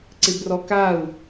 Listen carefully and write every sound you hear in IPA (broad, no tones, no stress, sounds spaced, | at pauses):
ǀ ɪ b r ɔ k a u̯